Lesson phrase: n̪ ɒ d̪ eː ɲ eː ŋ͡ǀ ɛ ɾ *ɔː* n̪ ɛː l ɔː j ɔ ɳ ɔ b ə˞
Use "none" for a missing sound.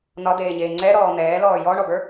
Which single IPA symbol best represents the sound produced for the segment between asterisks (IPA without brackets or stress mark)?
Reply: ɔː